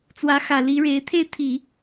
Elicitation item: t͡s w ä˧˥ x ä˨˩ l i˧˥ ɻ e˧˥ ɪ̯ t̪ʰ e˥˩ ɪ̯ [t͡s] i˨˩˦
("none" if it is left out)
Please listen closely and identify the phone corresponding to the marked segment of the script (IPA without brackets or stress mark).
t̪ʰ